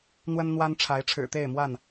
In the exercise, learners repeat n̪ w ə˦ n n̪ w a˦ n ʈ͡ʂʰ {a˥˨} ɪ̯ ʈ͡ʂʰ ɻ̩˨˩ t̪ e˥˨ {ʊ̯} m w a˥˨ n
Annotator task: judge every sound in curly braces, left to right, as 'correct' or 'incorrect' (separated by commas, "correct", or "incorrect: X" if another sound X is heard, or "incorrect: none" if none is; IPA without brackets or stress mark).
incorrect: a˨˦, incorrect: ɪ̯